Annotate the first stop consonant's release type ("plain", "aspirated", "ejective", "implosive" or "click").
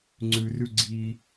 click